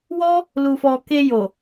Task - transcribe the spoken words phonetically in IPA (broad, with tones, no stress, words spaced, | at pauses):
wɔ˦ | lu˧fɔ˧ ke˧ jo˨